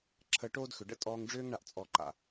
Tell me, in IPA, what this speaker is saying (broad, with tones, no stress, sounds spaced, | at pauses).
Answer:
ǁʰ əː˧ ʈ oː˦ d x ʏ˨ ɖ ə̰˧ tʼ ɔː˧ ŋ ɖ͡ʐ ʏː˦ ŋ ɳ a˦ ʔ t͡sʼ ɔ˧ ǃ a̰˨